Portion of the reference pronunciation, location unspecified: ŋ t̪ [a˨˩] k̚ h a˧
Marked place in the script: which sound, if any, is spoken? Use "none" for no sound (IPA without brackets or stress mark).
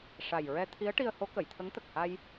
ə˨˩